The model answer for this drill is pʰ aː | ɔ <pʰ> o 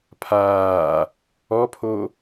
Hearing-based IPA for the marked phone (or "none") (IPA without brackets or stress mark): pʰ